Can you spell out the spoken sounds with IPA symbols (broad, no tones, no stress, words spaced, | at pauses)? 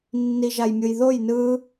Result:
nːiʒajmʲɯjðoj nɯ